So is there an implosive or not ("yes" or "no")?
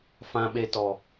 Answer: yes